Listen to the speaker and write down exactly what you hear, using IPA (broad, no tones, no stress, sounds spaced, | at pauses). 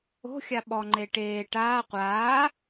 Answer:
o̤ xʲ a ɓ ɔ ŋ͡ǃ e ʈ eː ʈ aː qʷ aː